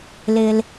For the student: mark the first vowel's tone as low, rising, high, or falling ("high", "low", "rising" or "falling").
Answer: high